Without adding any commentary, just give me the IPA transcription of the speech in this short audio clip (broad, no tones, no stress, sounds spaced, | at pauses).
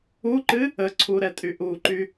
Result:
u ǃ ɨ | ə ǀʰ u ɾ ɛ tʼ y ʔ u ǃ y